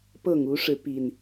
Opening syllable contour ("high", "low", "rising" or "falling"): falling